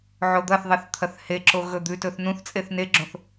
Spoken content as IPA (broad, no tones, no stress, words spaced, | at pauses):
ʕod̪ɐθðˤeθ t̪ʰɐθheǁo ɣɵd̪ʉtɵθ nũθt͡sʼeθ neɡ͡ǁõθ